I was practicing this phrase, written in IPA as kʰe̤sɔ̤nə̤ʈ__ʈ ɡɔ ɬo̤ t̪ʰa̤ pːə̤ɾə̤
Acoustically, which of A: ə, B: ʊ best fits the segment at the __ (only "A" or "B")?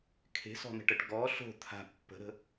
A